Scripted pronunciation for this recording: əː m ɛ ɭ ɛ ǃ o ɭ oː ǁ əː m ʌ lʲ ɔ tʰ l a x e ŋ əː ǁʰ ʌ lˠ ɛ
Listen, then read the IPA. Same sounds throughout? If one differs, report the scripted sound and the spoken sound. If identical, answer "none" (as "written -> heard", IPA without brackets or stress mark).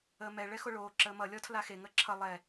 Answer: ǃ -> x